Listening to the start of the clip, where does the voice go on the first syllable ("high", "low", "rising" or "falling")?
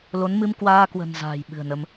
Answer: rising